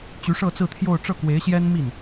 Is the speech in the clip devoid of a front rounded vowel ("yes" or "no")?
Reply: no